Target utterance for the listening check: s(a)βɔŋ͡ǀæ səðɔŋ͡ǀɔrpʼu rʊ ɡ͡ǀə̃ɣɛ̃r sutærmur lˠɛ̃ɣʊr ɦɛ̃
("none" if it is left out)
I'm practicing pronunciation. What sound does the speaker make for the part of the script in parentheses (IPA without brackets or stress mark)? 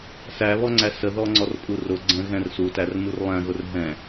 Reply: æ